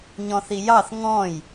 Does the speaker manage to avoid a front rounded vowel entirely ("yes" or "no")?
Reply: yes